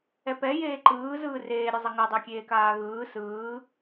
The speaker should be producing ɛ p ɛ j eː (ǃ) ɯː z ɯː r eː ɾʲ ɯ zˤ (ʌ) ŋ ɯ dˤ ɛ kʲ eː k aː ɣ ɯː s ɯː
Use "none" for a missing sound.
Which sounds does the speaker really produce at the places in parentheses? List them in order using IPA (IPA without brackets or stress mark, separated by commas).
ǃ, ʌ